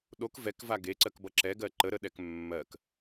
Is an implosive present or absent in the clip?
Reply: present